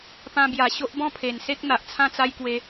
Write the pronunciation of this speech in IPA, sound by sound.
pã˧bja˨˩ɕo˦ʔ bɔ̃˥˧pʰe˨˩nse˦k̚n̪a˨ʔ t͡sʰã˥˧t͡sa˦jkwe˧

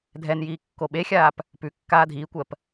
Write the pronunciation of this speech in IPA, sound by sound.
dʱɛnjiː kːoɓexʲaːp | pʉkːaː dʱiːkʷɜp

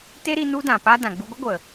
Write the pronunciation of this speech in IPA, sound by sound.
te˦ɾi˧ nu˦dã˨pa˦ dã˨ɡ͡bu˧ɡʷɨ˦ɡʷə˨

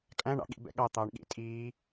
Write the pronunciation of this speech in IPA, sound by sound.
kʼæ̃ɳɑ̰ ɠḭbɛ̰ ɠɑ t̪ɑːɳɠḭ tʼiː

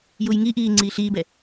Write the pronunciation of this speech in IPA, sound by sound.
jujŋiʔiː ŋ͡ǀiːɬiːbɛ

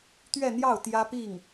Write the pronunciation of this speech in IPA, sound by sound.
t̪ɥɛ˥˧n̪jɑ˥˩ʊ̯ t̪jä˥pi˥˩ŋ

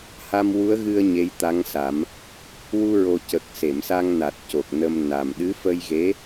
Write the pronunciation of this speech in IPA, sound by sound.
ha˧mwu˧˥ə̯ɣɨ˧ə̯ ɲe˧˥jt̪a˧˥ŋsa˨˩˦m | wu˧ɹo˨˩ cə˨˩k̚se˨˩˨msa˧ŋ na˨˩t̚co˨˩k̚nə˧mna˨˩m ɗɨ˧˥fə˧jɣe˧˥

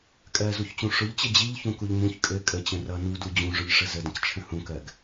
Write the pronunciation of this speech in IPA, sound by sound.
kʼɜzuçt͡ɕũ ʂʊʎt͡ɕɘ d͡ʑiʎçũkuʎ mũç kʼɘ kʼət͡ɕə̃ rʌ nudu d͡ʑũʐʊʎʂə zədə̃ct͡ʃʰə̃ hũkɜɡ

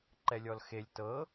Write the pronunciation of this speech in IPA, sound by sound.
ǃɛlʲɔlxelʲ tɤ

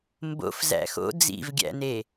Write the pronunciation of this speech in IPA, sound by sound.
mbo̰f zæ̰xo̰ d͡zḭvɡʲæ̰ne

